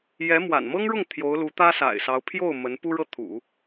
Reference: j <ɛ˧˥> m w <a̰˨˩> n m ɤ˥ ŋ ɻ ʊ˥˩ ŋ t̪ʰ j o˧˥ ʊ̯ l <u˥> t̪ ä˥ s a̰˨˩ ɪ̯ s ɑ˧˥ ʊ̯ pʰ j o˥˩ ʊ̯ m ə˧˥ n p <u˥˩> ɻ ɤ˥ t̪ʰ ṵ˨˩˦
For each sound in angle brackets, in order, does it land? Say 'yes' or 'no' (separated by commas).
yes, yes, no, no